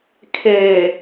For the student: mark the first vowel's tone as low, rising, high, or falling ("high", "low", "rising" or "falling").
low